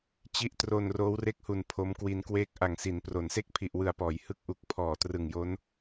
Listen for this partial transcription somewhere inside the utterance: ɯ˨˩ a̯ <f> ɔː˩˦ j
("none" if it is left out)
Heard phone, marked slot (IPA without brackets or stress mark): p